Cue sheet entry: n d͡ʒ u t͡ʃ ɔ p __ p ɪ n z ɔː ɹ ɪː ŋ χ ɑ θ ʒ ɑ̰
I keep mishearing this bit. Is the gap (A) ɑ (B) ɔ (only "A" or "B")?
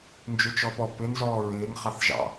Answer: B